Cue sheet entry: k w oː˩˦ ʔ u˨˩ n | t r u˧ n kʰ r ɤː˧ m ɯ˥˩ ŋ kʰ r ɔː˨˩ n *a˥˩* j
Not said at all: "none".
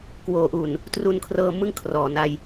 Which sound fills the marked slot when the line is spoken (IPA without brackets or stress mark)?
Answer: a˧